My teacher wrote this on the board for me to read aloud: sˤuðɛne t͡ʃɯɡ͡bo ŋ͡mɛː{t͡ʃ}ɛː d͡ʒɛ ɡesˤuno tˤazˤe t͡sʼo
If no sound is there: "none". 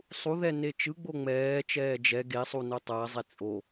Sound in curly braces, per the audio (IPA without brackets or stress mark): t͡ʃ